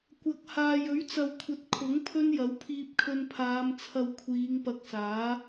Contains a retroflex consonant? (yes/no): no